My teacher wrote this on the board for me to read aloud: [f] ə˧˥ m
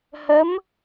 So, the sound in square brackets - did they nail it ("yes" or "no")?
no